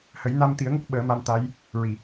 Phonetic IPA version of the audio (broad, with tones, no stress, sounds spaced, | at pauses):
h ə˨˩˦ j n a˧ m t̪ i˨˩˦ ə̯ ŋ ə˦˥ k̚ ɓ əː˨˩˦ m a˧ m t̪ a˧˥ j | ɹ i˨˩˨